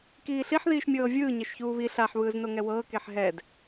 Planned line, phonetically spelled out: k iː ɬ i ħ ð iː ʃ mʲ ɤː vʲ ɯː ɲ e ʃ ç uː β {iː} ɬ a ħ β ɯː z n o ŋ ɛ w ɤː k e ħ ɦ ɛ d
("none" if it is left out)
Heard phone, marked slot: i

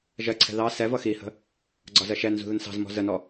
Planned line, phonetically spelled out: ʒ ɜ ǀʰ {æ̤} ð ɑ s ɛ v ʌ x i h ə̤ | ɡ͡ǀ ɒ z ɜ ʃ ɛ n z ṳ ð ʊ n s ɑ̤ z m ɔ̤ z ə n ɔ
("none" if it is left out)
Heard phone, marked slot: ɛ̤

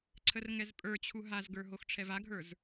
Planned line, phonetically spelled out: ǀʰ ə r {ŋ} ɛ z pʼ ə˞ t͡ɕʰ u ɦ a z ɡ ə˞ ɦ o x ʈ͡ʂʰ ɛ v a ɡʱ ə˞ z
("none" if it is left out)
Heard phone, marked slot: ŋ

